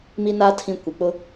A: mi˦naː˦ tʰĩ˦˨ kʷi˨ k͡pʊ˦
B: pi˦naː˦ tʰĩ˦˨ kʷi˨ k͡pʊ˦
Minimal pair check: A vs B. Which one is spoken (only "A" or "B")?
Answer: A